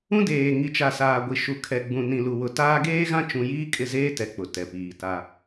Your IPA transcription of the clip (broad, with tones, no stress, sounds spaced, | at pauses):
ũ˦ d eː˨ ŋ i˨ t͡ʃ a˨ s aː˨ ɡʷ i˨ ʃ u˨ kʰ ɛ˨ ɡ͡b ũ˨ n ĩ˨ l u˨ w ʊ˨ t aː˦ ɡ eː˦ ɣ ã˦ t͡ʃ ũ˦ j iː˦ kʼ ɪ˦˨ z eː˦ t ɛ˨ k͡p ʊ˨ t ɛ˨ p iː˨ t a˦